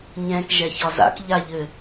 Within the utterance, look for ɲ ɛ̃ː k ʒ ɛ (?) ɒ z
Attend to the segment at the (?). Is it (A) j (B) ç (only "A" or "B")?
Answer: B